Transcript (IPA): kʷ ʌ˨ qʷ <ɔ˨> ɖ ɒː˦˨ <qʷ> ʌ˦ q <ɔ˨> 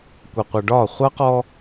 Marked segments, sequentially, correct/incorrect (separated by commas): incorrect, incorrect, incorrect